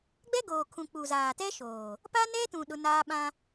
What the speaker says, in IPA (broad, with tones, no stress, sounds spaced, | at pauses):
ɡ͡b ɛ˦ ɡ oː˨ kʰ ũ˨ k͡p u˨ z aː˨ t ɛ˦ ʃ oː˨ | p a˦ n ɛ˦ t ũ˨ ɗ ʊ˦ n aː˦ ɓ ã˦